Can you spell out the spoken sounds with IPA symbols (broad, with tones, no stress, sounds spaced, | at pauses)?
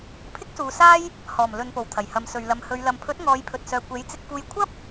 pʰ ɪ˥ k̚ s uː˨ s aː˥ j | h ɔː˨˩ m l ɵ˨ n p o˨˩ w t̪ʰ ɐ˨˩ j h ɐ˨˧ m s ɵ˨ ɥ l ɐ˨ m h ɵ˨˧ ɥ l ɐ˨ m pʰ ɵ˨˥ t̚ ŋ ɔː˨˧ j pʰ ɵ˨ t̚ s œː˨ kʷ e˨˥ j t͡s ɪ˧ k̚ f uː˧ j kʷʰ ɐ˥ p̚